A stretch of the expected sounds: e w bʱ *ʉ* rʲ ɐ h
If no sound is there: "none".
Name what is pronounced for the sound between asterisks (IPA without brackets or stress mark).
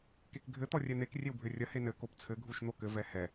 ɘ